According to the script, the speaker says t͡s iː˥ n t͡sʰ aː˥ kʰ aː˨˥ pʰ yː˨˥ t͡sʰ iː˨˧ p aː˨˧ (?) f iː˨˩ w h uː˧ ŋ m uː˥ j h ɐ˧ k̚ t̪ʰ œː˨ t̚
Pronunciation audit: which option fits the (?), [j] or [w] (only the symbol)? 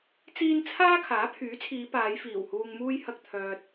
j